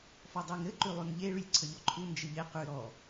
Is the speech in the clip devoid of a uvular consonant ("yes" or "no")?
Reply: no